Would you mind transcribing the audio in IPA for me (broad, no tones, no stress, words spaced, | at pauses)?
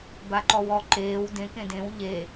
baǃɔwɔ ǃeːw dẽ kẽdẽw ʎe